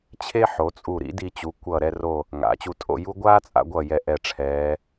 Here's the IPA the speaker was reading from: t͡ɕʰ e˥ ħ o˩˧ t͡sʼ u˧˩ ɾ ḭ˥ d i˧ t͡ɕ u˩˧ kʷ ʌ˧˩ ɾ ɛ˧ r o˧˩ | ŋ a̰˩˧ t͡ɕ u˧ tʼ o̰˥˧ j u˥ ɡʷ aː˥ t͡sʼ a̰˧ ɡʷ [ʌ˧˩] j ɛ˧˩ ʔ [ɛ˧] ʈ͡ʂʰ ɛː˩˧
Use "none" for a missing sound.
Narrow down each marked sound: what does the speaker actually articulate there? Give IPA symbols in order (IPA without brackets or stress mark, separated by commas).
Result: ʌ˧˩, ɛ˧˩